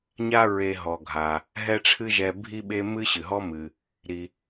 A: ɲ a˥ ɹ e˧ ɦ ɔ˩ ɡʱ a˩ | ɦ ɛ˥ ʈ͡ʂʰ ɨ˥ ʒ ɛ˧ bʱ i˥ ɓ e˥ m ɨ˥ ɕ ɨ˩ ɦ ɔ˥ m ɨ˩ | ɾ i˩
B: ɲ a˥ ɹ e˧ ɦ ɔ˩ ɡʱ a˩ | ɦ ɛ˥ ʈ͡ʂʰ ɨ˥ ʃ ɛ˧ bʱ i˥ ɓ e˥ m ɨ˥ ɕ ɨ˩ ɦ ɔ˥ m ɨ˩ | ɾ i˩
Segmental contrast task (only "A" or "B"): A